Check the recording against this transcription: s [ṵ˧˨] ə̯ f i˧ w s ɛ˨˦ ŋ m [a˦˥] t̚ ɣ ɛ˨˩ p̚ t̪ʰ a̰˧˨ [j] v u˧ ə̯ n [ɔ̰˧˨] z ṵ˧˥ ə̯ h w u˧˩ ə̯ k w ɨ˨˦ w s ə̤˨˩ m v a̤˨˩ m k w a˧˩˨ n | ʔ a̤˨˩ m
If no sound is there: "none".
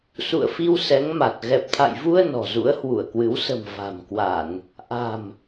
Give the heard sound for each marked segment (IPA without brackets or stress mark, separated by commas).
ṵ˧˨, a˨˩, j, ɔ̤˨˩